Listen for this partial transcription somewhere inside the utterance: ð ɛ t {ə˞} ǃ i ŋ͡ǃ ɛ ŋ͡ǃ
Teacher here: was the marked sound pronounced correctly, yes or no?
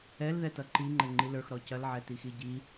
no